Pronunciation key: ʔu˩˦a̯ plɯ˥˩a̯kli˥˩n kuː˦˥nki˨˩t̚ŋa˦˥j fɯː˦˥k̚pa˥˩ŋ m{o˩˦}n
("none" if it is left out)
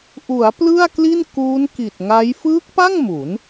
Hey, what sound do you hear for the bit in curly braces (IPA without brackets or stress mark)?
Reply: u˩˦